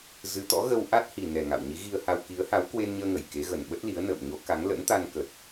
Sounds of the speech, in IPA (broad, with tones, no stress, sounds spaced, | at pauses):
z ɨ˨˦ t̪ ɔ̰˧˥ ɣ ə˧ w ʔ a˦˥ t̚ h i˨˩ n ɛ˨˩ ŋ a̰˧˨ w ɲ i˨˦ ɣ i˧ ə̯ h a˧ w k i˨˦ ə̯ h a˨˦ w k w e˧ n ɲ əː˧ ŋ ə˧˩ j k e˨˦ ɣ ə˨˩ n ɓ ə˦˥ t̚ l i˨˦ ə̯ n ə̰ː˧˨ m ɲ o˨˦ k a˨˦ ŋ l ə̰˧˥ n t̪ a˧ n k ə˨˩ t̚